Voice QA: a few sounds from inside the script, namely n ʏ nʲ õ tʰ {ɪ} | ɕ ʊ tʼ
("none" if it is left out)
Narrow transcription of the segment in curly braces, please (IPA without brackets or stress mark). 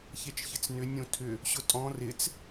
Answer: ʏ